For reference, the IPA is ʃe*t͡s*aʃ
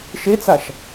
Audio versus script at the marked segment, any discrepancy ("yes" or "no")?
no